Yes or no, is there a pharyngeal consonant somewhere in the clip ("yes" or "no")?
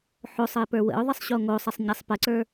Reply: yes